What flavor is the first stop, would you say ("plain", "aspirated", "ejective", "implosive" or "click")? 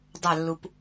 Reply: plain